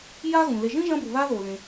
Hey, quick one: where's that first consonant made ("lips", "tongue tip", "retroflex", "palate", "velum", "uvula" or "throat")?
palate